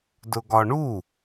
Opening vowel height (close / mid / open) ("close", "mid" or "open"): close